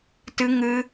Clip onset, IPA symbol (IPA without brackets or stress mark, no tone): t